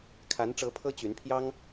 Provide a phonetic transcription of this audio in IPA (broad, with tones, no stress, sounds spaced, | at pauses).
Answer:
kʰ a˧˥ n ʈ͡ʂ ɤ˧˥ pʰ ɤ˥ t͡ɕ y˧˥ n pʰ j ɑ˥ ŋ